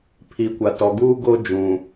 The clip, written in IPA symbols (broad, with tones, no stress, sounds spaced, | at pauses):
pʰ i˨ kʷ a˨ t ɔ˨ ɡ uː˦ ɡ o˦ d͡ʒ ũ˨